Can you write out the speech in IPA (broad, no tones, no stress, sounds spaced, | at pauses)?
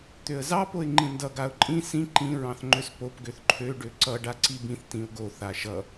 t̪ ø ə̯ z ɑ p o ɪ̯ ŋ͡ǃ ĩ n d ʌ ɡ a ʊ̯ ǃʼ ĩ s ĩ ǃ ĩ ɹ ɑ̃ θ ŋ͡ǃ ø s p o p ɡ ø θ ǃʰ ø ɖ ø ǀ ʌ ɖ a ǀ i b ĩ θ t ĩ ʊ̯ ɡ o θ a ʃ ʌ